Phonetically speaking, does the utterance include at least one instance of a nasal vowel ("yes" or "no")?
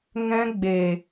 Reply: yes